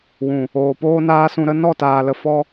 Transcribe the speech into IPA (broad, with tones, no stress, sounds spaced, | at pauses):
w ũ˨ | oː˨ p oː˦ n aː˦ s ũ˧ ɾ ə˦ n ɔ˦˨ t aː˨ l ə˨ f ɔ˧